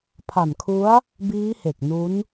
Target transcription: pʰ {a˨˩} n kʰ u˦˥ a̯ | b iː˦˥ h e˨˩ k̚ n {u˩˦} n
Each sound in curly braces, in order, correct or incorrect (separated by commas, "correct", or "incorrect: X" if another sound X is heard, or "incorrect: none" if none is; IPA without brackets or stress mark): correct, incorrect: u˦˥